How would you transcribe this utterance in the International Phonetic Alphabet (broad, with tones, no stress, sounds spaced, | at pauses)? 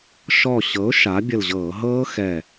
ʃ ɔ˧˩ ɕ ɤ˩˥ ʊ̯ ʃ a˩˥ bʲ ə˧˩ l ʑ ɤː˧˩˧ ɦ ɤː˦˥ x ɛ˧˩